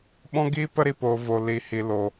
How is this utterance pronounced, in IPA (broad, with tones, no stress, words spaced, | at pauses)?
ɓɔ̃˦ɡiː˦pə˦ ɾi˧poː˧vo˧ li˧hi˧lo˧